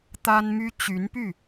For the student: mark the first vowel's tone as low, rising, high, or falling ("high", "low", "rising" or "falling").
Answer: high